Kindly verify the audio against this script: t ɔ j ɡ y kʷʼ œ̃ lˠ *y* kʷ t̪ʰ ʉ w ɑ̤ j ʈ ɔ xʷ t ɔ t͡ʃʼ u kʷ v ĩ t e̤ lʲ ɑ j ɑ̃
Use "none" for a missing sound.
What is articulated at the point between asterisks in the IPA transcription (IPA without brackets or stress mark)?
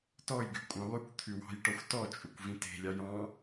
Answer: y